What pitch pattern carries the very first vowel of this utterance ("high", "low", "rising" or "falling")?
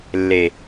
low